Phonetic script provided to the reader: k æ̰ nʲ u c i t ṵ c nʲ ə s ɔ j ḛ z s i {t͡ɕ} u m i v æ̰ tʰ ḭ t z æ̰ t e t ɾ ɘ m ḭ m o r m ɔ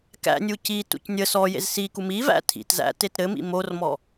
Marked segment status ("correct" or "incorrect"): incorrect